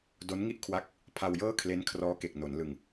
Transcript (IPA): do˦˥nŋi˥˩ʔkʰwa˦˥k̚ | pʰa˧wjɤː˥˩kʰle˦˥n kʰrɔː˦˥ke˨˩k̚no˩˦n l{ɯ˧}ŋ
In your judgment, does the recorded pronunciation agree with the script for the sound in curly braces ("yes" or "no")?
yes